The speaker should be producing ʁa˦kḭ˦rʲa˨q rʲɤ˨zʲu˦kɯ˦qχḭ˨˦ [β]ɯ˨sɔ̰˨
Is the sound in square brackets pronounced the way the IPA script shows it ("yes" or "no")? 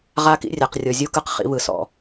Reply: yes